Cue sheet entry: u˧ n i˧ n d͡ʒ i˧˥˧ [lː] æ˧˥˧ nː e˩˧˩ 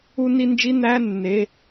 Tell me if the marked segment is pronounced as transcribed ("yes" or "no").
no